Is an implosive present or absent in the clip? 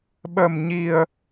present